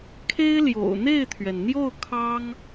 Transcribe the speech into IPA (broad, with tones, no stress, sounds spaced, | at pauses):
kʰ e˥ ɪ̯ l j o̰˨˩ ʊ̯ n̪ e˥˩ ɪ̯ t̪ʰ ɥ ɛ˩ n n̪ j o˥˩ ʊ̯ kʰ ɑ˥ ŋ